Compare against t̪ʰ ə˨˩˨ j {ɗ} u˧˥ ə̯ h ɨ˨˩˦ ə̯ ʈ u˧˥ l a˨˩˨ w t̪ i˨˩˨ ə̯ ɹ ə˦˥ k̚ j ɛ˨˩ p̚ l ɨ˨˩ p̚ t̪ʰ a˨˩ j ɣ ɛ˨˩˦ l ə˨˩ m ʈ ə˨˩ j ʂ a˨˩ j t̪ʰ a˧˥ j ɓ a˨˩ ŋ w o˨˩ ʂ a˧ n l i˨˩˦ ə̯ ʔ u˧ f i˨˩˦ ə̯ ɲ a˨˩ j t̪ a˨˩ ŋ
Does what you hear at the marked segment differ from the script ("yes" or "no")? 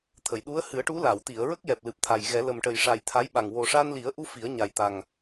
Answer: no